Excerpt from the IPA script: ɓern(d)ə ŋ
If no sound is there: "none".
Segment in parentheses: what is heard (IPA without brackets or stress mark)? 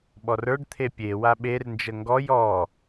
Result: d͡ʒ